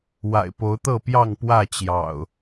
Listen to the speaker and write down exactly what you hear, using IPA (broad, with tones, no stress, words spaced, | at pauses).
wa̰˨˩ɪ̯po˨˦ʊ̯t̪ɤ˥˨pjɑ˥˨ŋ pwä˥˨t͡ɕjɑ̰˨˩ʊ̯